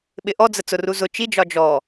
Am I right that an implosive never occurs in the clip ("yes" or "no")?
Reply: no